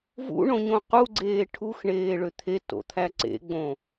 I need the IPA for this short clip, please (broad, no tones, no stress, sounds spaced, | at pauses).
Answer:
v ṵ ɳ õ ɲ õ q u ɡ͡ǀ eː ʈʰ u x ɳ eː ɭ ø t̪ʰ e t o̰ t̪ʰ æ ǀ ḛ ɡ͡b õ